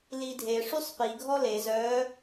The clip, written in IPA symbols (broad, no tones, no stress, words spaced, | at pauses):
lidʱe ʂysˤpi ɡʱɔle zœ